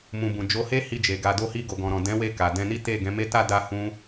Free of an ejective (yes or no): yes